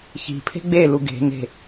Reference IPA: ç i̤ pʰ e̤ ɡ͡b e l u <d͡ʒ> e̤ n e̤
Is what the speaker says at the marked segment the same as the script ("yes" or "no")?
no